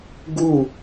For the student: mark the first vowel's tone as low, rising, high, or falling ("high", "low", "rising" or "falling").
falling